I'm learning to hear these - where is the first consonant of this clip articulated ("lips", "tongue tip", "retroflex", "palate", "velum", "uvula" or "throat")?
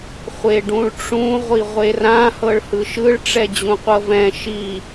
uvula